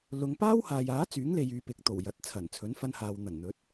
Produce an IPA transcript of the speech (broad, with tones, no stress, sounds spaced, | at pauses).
l ʊ˨˧ ŋ p aː˥ w h aː˨ j aː˨˥ t͡s yː˨˥ ŋ l e˨ j yː˨ p ɪ˨ k̚ t̪ o˨˩ w j ɐ˨ t̚ t͡sʰ ɐ˨˩ n t͡sʰ ɵ˨˥ n f ɐ˧ n h aː˨ w n̪ ɐ˨˩ n n̪ ɵ˨˥ t̚